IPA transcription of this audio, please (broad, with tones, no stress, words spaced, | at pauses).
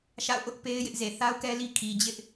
ʃa̰˦˨ʊ̯ʔʊ˦ʔ pe˦ɪ̯ jɪ˦ʔze˨ θa˦ʊ̯kɛ˦li˦ kʰi˨d͡ʑɪ˦ʔ